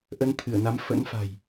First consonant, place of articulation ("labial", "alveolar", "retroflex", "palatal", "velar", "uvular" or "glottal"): glottal